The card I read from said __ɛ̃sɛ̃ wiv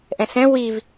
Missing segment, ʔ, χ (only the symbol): ʔ